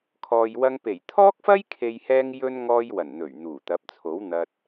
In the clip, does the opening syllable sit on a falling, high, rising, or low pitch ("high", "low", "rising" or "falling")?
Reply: low